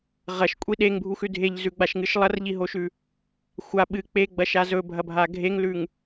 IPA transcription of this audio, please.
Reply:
ʁ ɐ ʃ kʷʼ i ɗ e ŋ bʱ u x ʉ dʱ e ʎ z ʉ ɡ͡b a ʃ ŋ ɨ ʃ lˠ ɐ r ʎ i ɦ o ʃ ʉ | xʷ a ɓ ɨ k͡p e ɡ͡b ɐ ʃ a z ɵ bʱ ɐ bʱ a ɡʱ e ŋ l ʉ ŋ

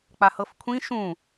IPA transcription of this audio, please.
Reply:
k͡p a h ɤ f kʷʰ ĩ ʃ ũ

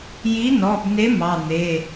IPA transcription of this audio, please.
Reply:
j i˨˥ n ɔ˩˧˩ b n e˨˥ m ɑ˩˧˩ n̪ e˩˧˩

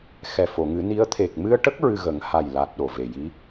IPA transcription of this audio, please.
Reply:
x ɛ˨˩ f o˨˩˨ ŋ ɨ˨˩˦ n i˧˥ ə̯ t̪ʰ e˨˩ k̚ m ɨ˧ ə̯ ʈ ə˦˥ k̚ ɹ ɨ˧ ɣ ə˨˩˦ ŋ h a˨˩ j l a˨˩ t̚ ɗ o˨˩ v e˨˩ j i˧˥

